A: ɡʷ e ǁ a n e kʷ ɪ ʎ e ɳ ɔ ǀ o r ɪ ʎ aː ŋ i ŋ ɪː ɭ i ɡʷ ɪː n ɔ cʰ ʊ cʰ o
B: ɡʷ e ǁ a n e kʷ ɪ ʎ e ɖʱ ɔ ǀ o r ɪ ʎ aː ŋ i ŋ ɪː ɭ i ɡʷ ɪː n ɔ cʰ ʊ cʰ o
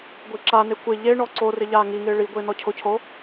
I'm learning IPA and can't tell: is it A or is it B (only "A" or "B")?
A